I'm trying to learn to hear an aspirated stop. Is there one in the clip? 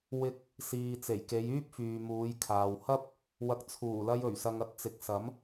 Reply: yes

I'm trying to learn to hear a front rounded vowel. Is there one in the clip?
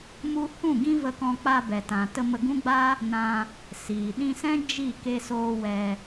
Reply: no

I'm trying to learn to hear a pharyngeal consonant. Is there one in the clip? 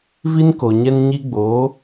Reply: no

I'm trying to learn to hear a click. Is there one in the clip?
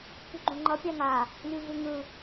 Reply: yes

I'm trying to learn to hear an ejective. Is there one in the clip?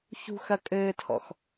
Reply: yes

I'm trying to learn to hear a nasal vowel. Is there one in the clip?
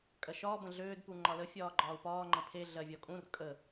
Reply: yes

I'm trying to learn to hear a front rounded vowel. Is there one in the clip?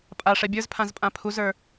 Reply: no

